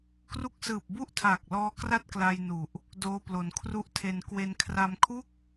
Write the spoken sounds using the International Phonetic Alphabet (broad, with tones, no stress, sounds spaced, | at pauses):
k r u˦˥ k̚ s ɯː˨˩ p̚ b u˥˩ ʔ tʰ aː˨˩ k̚ l ɔː˦˥ k r a˥˩ t̚ k l a˧ j n u˨˩ ʔ | d oː˧ p l o˩˦ n kʰ r u˦˥ ʔ tʰ e˧ n k w e˧ n kʰ r a˧ m kʰ u˥˩ k̚